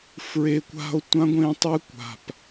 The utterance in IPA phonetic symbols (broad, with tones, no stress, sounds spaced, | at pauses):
f ɹ e˧ kʷ a̤˦ o̯ tʷ ã˦ ɡʷ ẽ˦ tˤ e˦ kʷ a̤˨ p